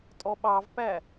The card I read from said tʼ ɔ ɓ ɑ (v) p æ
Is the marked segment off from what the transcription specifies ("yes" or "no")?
no